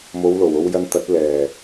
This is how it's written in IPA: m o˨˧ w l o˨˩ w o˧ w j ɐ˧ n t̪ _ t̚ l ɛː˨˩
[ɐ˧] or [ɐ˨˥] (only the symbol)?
ɐ˨˥